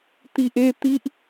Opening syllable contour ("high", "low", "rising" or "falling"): low